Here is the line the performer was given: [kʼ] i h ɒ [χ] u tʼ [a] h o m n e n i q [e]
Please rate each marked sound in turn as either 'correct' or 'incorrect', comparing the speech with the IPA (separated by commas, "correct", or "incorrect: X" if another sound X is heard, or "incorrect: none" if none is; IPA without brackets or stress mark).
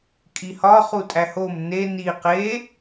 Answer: correct, correct, incorrect: æ, correct